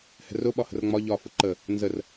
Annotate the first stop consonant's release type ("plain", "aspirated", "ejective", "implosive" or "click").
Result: implosive